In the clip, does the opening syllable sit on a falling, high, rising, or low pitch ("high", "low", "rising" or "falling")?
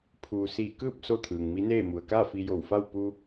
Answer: low